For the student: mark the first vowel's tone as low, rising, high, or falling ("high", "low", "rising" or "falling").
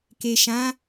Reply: low